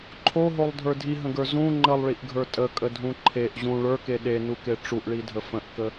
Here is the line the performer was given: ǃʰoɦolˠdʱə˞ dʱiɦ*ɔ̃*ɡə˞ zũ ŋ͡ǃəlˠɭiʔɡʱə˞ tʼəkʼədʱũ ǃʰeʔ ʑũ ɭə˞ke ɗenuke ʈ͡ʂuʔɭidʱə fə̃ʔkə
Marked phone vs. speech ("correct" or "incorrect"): incorrect